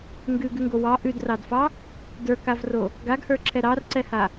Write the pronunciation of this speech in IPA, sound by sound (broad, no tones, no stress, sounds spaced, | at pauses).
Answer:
ŋ ɡ ʉ ɡ ʉ ŋ ɡ o w ɑ ʔ ʉ d r ɑ d f ɑ | d ə˞ k a v r o | ɡ a ɡ h ə˞ ǁʰ ɛ ɾ ɑ r ǀ ɛ h a